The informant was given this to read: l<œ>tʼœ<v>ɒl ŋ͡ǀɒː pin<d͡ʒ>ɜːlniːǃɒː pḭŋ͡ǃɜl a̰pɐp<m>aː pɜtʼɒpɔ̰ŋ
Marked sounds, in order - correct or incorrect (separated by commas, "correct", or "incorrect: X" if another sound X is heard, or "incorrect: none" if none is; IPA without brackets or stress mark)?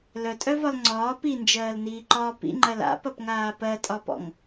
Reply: correct, correct, correct, incorrect: ŋ